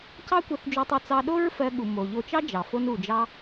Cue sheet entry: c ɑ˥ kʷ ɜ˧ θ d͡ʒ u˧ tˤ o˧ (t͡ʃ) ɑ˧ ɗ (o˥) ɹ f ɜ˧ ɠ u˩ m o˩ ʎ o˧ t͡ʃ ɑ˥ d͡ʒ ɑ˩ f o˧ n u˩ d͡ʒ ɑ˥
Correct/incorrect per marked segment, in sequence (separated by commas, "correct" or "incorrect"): incorrect, correct